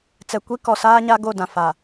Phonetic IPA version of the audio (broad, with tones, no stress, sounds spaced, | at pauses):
t͡s ɛ˨ kʷ i˦ k ɔ˨ s aː˦ ɲ a˦ ɡ o˦˨ d ã˨ f a˨